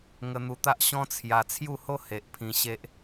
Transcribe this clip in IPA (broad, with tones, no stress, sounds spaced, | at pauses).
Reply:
ŋ ə˧ n̪ u˧ t̪ a˦ ʔ ɕ ɔ̃˦ t͡sʰ j a˧ t͡sʰ j u˥˧ h o˦ h e˨ ʔ pʰ ĩ˧ ɕ e˦ ʔ